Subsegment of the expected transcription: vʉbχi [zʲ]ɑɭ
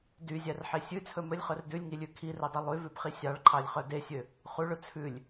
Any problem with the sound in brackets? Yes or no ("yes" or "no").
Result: yes